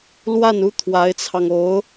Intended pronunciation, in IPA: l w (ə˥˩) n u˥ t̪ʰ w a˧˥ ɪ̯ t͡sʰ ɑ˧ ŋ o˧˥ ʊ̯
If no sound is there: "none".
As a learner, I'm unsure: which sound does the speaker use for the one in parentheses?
a˥˩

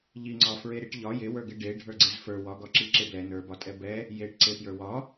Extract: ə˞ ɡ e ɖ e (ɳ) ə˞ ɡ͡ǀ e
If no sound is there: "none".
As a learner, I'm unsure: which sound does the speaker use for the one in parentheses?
ɖʱ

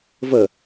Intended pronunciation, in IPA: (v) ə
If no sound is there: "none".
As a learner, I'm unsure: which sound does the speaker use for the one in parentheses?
v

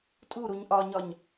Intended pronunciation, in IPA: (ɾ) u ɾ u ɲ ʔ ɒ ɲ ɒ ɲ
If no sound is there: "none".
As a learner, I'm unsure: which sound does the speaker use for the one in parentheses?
tʼ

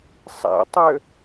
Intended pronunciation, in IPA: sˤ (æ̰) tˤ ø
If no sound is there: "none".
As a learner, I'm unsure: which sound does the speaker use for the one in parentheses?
æ̰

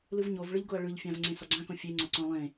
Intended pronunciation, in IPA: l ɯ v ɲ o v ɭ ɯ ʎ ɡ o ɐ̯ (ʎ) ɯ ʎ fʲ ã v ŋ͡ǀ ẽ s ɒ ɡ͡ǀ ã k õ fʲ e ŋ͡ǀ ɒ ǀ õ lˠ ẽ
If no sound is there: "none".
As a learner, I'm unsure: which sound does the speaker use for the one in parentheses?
ɭ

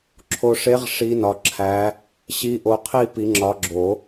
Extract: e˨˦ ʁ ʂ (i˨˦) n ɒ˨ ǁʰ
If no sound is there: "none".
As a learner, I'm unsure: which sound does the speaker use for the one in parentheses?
i˨˦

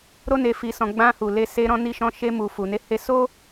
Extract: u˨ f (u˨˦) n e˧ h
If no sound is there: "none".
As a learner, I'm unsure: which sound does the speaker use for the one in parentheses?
u˨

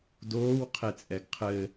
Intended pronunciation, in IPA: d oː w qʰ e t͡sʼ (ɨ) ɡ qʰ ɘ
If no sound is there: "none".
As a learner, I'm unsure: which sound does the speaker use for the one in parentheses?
ɛ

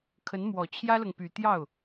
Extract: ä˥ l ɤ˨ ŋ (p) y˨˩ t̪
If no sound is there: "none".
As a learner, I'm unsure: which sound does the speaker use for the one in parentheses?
p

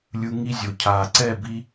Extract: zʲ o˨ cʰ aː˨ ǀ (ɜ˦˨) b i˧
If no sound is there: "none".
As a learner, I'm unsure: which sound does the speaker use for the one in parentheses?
ɛ˦˨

